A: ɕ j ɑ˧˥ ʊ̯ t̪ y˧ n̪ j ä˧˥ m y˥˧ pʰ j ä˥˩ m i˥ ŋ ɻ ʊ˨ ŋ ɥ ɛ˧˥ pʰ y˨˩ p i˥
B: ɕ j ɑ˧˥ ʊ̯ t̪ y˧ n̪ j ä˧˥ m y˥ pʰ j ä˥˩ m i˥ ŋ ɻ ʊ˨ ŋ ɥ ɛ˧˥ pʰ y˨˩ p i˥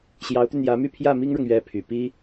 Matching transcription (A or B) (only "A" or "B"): A